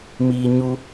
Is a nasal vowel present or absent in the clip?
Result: absent